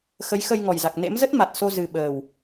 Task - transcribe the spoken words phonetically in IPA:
xə˨˦jxə˧j ŋɔ˨˩jza˨˩k̚ nḛ˧˥mzə˦˥t̚ ma˨˩t̚so˧ zɨ˨˩ ɓəː˨˩w

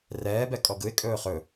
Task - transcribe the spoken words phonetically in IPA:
rɛː bɛkʼɔɡɯɪ̯ kʼɵːχɵ

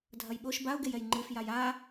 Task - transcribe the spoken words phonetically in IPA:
dʱɐjɓoʃ baʊ̯ɡejɛj ŋ͡ǃɨfjaj a

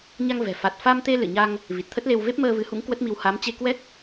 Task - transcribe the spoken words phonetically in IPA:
ɲa˧ŋvɛ̤˨˩ fa˨˩t̚fa˧mt̪e˧ lɨ̰˧˨ɲa˧ŋ | vi˨˩t̚t̪ʰə˦˥t̚le˧w ve˦˥p̚məː˧vɨ˨˦hṵ˧˥ŋ kwə˦˥t̚mi˧w ha˨˦mt͡ɕe˧ kwɛ˦˥k̚

